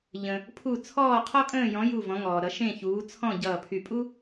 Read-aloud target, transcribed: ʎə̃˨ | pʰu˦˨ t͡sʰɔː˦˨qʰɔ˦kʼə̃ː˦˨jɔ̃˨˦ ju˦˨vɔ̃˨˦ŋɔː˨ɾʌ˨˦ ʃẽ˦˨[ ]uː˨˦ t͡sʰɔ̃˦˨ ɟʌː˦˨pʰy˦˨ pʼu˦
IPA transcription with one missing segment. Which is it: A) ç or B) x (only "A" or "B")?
A